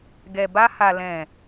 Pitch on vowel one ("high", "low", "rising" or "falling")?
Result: low